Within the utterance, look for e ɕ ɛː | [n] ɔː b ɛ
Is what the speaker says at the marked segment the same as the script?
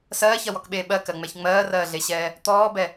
no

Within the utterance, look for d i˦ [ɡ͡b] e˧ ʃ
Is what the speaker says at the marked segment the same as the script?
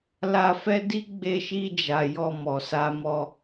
yes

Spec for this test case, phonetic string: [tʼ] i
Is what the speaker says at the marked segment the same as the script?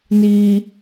no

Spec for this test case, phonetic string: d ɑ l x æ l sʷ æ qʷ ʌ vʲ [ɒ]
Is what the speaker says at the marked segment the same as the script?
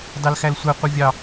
no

